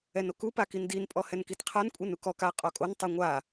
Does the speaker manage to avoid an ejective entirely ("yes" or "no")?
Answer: no